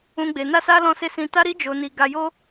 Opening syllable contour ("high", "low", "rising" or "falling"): high